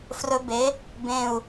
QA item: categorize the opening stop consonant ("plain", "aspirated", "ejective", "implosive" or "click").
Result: plain